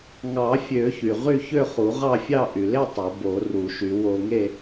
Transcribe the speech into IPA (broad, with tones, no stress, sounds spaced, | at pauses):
ŋ ɑ˨˩˦ fʲ ø˨˩˦ ç y˩ ʁ y˥˧ ç ø˥˧ χ u˨˩˦ ʁ ɑ˥˧ fʲ ɑ˥˧ ʔ y˩ l e˥˧ tˤ o˨˩˦ b o˨˩˦ r u˨˩˦ ʃ y˨˩˦ w o˧ ŋ e˥˧